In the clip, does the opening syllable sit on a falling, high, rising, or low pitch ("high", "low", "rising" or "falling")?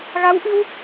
rising